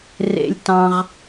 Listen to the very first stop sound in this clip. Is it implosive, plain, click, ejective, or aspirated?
plain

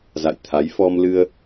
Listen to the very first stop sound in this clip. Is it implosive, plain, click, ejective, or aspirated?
aspirated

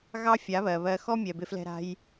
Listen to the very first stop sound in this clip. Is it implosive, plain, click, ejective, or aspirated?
plain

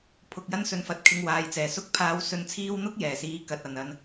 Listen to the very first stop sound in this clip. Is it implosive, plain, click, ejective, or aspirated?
aspirated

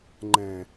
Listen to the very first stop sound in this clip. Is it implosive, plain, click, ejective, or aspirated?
click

